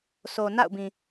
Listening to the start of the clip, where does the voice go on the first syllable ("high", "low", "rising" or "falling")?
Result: low